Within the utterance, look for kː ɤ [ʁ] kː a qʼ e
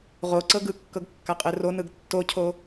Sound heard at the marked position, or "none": ɡ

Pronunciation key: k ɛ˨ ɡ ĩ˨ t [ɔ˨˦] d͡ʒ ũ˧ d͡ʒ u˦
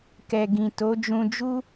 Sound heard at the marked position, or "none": o˨˦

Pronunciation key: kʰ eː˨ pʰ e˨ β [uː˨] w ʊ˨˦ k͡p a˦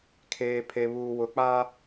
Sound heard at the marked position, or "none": uː˨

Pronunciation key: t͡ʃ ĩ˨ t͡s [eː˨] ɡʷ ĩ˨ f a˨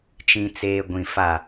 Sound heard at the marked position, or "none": eː˨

